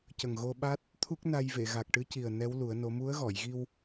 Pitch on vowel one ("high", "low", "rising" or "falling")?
low